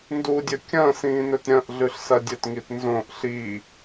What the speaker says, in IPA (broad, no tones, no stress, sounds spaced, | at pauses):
n d u dʲ ɵ kʲ ɐ̃ s ĩː n ɵ t ɾʲ ɐ̃ ʔ ɮ ʉ ɬ s ɐ dʲ ɵ t ŋ i t n z õ ʔ ɬ i